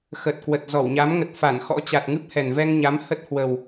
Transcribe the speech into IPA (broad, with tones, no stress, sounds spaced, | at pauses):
x ə˨˩ t̚ k w ə˨˩ t̚ z ɔ˧˩ w ɲ a˨˦ m ŋ ə˨˩ t̚ f a˧˩ n x ɔ̰˧˥ t͡ɕ a˨˩ t̚ ŋ ɨ˦˥ p̚ h ɛ˨˩ n v ɛ˧ ŋ ɲ a˨˦ m h ə˦˥ t̚ h w ə˨˩ w